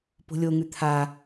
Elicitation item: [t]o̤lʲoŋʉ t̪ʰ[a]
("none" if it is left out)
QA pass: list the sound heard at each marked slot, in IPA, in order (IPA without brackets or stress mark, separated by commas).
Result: p, a